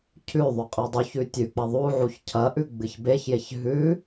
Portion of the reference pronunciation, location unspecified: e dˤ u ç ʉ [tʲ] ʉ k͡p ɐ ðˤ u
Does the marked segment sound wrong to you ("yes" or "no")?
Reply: no